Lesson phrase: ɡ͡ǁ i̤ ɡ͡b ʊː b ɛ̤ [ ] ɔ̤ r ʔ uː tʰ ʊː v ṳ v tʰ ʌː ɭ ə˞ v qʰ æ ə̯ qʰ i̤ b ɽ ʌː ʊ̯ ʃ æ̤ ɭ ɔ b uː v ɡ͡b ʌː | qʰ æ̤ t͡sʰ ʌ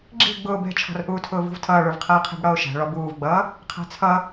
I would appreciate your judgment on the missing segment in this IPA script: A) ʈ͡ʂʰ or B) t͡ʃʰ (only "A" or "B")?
B